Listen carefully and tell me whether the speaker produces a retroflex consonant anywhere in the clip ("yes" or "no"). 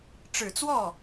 yes